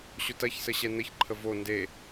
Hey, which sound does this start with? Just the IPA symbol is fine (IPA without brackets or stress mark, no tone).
ɕ